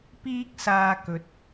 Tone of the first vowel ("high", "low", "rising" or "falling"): high